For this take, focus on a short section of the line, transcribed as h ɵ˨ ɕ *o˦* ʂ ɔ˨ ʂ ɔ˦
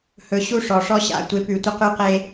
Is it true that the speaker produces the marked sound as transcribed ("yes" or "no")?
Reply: no